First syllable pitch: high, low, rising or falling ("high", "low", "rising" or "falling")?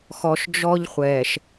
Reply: low